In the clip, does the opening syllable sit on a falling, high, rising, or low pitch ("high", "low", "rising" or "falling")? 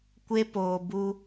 high